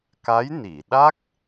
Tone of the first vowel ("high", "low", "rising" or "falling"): rising